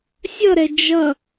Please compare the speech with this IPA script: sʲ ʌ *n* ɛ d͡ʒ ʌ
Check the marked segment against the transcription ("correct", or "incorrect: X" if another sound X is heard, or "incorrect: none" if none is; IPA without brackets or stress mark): incorrect: ɾ